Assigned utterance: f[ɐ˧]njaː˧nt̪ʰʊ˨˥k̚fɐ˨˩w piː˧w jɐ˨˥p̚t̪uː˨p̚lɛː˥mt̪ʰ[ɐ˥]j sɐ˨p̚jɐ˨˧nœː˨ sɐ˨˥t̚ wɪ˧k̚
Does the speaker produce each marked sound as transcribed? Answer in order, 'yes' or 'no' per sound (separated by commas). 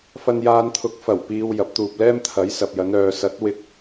yes, no